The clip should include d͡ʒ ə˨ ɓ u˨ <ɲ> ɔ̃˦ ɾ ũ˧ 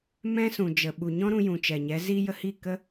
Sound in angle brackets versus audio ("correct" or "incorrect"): correct